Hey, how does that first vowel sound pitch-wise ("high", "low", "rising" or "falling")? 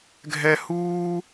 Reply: high